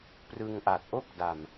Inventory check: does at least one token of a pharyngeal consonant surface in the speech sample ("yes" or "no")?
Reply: no